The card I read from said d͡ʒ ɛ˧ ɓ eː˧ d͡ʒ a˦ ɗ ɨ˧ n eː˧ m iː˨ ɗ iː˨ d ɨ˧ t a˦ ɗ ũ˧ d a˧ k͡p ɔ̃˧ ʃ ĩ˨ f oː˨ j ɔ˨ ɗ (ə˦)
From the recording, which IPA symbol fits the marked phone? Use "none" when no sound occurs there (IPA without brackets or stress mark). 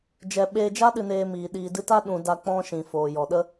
ə˦